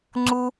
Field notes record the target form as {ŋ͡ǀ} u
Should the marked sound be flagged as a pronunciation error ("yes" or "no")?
no